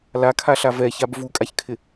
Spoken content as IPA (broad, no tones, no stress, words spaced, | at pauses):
lakʰaɬa vɛçab vukʼaçkʰɪ